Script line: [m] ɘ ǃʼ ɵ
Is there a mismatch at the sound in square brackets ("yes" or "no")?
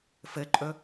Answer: yes